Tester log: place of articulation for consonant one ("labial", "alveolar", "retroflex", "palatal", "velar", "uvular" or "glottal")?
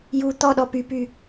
palatal